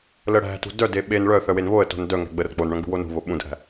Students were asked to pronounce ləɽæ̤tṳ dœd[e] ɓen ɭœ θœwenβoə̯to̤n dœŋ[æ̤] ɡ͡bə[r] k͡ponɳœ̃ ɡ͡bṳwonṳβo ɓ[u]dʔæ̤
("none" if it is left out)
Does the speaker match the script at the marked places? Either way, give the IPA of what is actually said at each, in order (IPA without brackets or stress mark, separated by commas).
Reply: e, æ̤, r, ũ